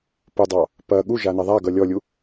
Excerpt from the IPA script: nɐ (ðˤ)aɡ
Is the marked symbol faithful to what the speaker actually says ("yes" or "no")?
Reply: yes